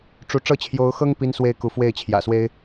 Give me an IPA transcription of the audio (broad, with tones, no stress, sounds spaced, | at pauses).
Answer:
ʈ͡ʂ u˧˥ ʈ͡ʂ ɤ˥˩ t͡ɕʰ j o˧˥ ʊ̯ x ɤ˥ ŋ p i˥ n s w e˥ ɪ̯ k u˧˥ f w e˥˩ ɪ̯ t͡ɕʰ j ä̰˨˩ s w e˥ ɪ̯